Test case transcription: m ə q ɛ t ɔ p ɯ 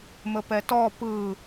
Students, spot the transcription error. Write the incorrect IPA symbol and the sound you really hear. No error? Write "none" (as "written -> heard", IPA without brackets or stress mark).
q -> p